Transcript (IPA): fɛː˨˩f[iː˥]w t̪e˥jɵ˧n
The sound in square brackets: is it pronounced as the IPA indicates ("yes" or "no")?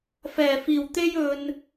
no